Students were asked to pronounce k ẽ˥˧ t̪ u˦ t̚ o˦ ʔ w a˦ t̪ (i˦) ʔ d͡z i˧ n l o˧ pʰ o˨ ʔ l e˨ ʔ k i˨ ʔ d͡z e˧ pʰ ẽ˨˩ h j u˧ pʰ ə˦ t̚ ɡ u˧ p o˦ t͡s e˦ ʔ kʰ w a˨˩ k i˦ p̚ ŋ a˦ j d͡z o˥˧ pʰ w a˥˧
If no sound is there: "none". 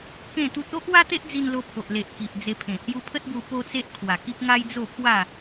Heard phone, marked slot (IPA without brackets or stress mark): e˦